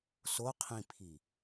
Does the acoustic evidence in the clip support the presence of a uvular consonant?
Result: yes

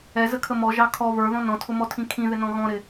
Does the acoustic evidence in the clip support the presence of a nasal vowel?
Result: yes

